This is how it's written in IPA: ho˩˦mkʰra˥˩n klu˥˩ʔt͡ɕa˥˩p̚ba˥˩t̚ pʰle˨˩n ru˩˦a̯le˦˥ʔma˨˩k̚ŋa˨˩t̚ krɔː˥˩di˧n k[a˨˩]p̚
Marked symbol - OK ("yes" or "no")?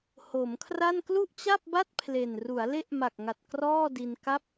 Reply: no